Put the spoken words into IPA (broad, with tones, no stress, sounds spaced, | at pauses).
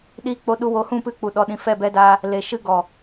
ɗ iː˧ k͡p o˧ ɗ u˧ w o˧ h ũ˦˨ p ɨ˧ k͡p u˨ ɗ ɔ˨ ɗ ĩ˨ f ɛ˦˨ b ɛ˧ d a˧ | l e˨ ʃ ɨ˧ ɡ ɔ˨